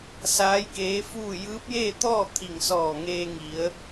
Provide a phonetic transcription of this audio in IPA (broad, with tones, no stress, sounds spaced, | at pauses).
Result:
s aː˧˥ j k eː˧˥ f uː˥˨ j ɯː˧˥ p̚ j eː˥˨ t̪ ɔː˥˨ t̪ʰ i˧˩ ŋ s ɔː˧˩ ŋ eː˧ ŋ i˩˧ ə̯